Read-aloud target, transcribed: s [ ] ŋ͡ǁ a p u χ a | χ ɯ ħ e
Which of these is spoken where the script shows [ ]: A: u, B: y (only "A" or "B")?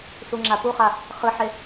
A